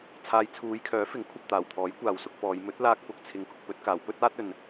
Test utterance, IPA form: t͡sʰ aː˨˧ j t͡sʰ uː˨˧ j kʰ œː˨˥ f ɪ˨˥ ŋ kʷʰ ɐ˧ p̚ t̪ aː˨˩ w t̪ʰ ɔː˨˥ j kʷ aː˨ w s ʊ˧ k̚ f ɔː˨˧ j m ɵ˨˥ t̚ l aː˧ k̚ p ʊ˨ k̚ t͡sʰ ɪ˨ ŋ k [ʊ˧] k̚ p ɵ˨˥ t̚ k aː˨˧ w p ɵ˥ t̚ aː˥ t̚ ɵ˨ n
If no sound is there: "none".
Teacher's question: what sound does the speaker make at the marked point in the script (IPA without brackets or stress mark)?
ʊ˧